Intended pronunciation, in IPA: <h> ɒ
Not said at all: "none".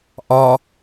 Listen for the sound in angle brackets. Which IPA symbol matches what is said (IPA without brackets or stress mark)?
ʔ